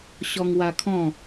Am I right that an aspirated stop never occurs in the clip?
no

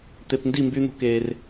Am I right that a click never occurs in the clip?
yes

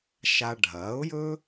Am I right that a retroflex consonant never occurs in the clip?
no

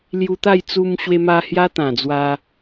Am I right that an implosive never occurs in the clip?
yes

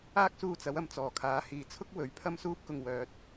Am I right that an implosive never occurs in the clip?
yes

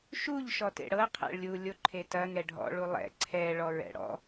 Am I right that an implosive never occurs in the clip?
yes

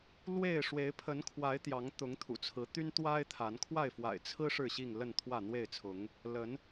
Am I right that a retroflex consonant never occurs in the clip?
no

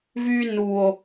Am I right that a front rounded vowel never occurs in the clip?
no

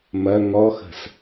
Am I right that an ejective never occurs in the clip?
yes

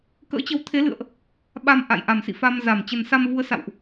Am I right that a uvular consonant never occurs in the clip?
yes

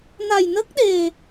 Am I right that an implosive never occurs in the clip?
no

